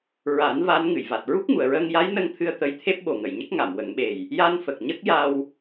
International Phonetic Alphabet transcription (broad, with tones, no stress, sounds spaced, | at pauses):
ɹ a˨˩˦ n v a˧˥ n ŋ ɨ˨˩˨ j v a˨˩ t̚ ɹ u˦˥ k̚ ŋ u˨˩˨ ə̯ ɹ əː˧ ŋ j a˧˥ j n ə˧ ŋ t̪ʰ ɨ˧ ə̯ t̪ ə˧˥ j t̪ʰ e˦˥ p̚ ɓ o˨˩ ŋ ə˨˩˨ j ɲ ə˦˥ k̚ ŋ a˨˩˨ m w ə˨˩˦ ŋ ɓ e˨˩ j | j a˧ n f ə˨˩ k̚ ɲ ə˦˥ k̚ j a˧ w